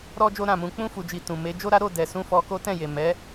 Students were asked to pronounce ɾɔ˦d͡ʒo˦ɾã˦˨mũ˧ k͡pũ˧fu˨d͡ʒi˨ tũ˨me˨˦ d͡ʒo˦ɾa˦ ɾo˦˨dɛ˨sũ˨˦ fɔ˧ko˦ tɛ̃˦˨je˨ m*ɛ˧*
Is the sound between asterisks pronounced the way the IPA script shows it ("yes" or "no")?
no